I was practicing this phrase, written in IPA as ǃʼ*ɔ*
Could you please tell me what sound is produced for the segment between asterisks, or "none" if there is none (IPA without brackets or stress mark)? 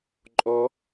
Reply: ɔ